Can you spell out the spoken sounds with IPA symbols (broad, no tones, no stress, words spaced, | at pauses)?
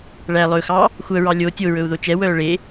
ɭæ lˠɵxɑ | xʷœɹɑ lʲo tʲoɹɵu̯ ðot͡ʃɛwœː ɭe